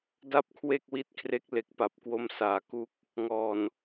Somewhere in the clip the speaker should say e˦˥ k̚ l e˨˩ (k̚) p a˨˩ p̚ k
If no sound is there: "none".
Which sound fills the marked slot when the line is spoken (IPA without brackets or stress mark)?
k̚